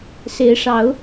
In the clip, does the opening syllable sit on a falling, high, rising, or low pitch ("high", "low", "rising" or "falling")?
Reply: rising